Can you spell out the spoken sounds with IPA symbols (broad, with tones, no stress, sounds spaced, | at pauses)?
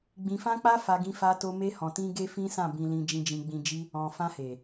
ɡ͡b ĩ˧ f ã˦ k͡p a˦ f a˧ ɡ ĩ˧ f a˧ t o˧ m e˧ h ɔ̃˨ t ĩ˧ ɡ e˦ f ĩ˦ s ã˦˨ b ĩ˨ l ĩ˨ d͡ʒ ĩ˨ d͡ʒ ĩ˨ ɡ͡b ĩ˨ d͡ʒ i˧ | ɔ̃˨ f ã˧ h e˨